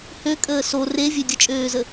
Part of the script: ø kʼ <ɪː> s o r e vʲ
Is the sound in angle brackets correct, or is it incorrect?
incorrect